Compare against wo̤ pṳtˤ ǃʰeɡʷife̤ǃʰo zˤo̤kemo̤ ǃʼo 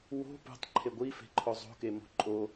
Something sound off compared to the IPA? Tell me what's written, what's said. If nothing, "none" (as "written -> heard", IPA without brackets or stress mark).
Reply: none